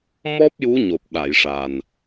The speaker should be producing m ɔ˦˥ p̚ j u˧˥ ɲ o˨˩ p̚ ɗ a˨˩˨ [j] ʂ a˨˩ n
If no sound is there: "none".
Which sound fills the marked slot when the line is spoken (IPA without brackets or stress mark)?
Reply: j